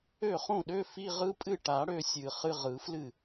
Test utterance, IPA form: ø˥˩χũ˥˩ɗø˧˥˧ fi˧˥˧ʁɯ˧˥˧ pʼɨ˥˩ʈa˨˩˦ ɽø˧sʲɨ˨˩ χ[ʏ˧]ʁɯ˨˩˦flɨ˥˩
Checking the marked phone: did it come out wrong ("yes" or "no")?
yes